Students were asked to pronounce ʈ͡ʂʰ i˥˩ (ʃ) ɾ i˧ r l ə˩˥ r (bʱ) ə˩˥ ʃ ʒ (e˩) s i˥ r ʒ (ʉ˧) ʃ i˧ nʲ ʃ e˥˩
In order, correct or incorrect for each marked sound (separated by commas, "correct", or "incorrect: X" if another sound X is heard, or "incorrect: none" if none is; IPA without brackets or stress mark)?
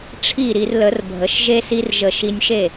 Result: incorrect: none, correct, incorrect: e˥, incorrect: ə˧